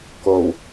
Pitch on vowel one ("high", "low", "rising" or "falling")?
low